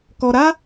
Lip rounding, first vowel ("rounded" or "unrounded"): rounded